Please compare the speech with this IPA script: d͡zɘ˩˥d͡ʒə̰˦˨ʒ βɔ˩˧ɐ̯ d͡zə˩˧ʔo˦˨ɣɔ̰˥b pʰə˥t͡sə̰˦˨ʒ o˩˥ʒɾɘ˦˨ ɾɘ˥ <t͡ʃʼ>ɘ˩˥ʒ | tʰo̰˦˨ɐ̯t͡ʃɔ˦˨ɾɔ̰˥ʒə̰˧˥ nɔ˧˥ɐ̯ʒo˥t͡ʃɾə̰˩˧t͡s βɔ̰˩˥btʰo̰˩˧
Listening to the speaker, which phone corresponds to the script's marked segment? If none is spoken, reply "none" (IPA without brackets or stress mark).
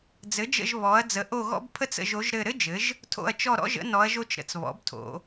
d͡ʒ